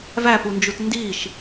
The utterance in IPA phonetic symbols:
v æ p u n d͡ʒ u t n d i ʃ

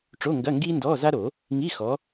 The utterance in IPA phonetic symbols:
ʈ͡ʂ o˧˥˧ ŋ ɡ ɐ˧˥˧ ŋ ɡ iː˥ n d ɔː˧˥˧ z a˥ ɾ o˨˩˦ | ŋ i˧˥˧ x ɔ˨˦

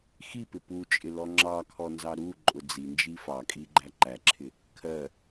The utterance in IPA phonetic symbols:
x i p ɪ p u t͡ʃʼ ɪ l ɔ ŋ͡ǁ ɑ kʰ ɔ n z ɑ ɾ u ǃʼ ʊ d͡z i n d͡ʒ i f ɑ kʼ i ɡ͡ǃ æ ǃ æ ǁʰ ɪ | kʰ ɜ

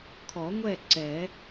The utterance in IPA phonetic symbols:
kʰ ɔ˨˩˦ ŋʷ ɛ˥˨ ǀ ɛ˨˩˦

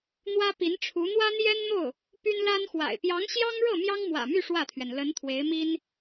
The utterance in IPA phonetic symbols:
n̪ w ä˥ p i˧˥ n ʈ͡ʂʰ u˧˥ n̪ w ä˥ n̪ j ɛ˥ n n̪ o˥˩ ʊ̯ | p y˥ n l a˥ n x w a̰˨˩ ɪ̯ p j ɑ˧˥ ŋ ɕ j ɑ˥ ŋ ɻ ɤ˥˩ m j ɑ˥ ŋ m w ä̰˨˩ m y˥˧ ʂ w ä˥˩ t̪ʰ ɥ ɛ˩ n l ə˧˥ n t̪ʰ w e˧˥ ɪ̯ m i˥ n

